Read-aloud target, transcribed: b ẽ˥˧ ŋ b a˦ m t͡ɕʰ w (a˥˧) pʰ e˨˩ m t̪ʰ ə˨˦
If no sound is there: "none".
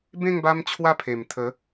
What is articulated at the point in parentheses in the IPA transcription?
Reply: a˥˧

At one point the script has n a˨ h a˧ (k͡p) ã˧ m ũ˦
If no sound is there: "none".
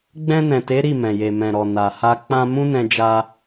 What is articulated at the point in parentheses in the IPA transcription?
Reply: k͡p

